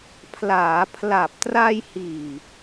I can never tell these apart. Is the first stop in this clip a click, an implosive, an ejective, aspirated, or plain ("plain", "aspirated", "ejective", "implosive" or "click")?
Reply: aspirated